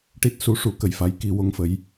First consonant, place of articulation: retroflex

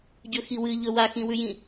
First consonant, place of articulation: palatal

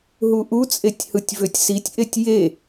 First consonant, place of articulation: glottal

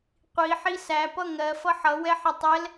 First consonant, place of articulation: uvular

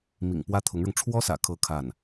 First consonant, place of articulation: labial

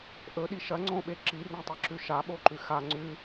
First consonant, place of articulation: glottal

